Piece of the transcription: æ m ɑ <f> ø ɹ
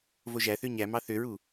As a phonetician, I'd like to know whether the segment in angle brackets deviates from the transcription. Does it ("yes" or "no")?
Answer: yes